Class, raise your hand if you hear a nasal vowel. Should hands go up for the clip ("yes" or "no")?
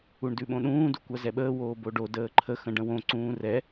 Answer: yes